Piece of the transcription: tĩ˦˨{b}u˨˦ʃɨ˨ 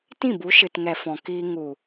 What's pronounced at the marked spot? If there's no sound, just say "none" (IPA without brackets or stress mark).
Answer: b